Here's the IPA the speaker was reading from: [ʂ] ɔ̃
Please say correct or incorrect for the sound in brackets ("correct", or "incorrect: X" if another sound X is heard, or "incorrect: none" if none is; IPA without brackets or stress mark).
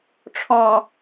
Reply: incorrect: ʈ͡ʂʰ